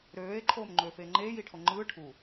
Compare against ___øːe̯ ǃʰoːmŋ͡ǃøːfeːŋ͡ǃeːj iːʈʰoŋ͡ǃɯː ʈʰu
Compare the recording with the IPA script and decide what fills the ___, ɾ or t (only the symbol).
ɾ